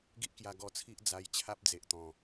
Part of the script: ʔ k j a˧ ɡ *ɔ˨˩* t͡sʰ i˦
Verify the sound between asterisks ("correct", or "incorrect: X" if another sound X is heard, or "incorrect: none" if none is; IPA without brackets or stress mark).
incorrect: ɔ˧